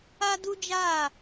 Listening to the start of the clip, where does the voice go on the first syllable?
high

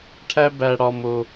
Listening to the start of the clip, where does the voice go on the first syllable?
high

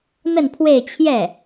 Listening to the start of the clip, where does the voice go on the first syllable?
falling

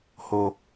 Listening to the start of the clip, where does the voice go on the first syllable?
high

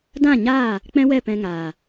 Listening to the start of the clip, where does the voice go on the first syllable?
falling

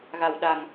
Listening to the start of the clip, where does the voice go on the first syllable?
low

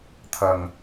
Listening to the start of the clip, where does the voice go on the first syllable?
low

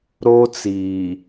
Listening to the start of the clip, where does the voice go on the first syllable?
high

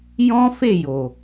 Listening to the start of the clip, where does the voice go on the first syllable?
high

